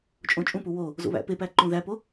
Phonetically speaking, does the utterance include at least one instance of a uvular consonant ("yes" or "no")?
no